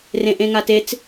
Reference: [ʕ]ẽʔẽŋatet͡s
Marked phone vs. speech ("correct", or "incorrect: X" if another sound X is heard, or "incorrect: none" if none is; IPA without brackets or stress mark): incorrect: r